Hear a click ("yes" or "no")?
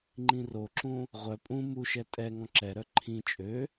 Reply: yes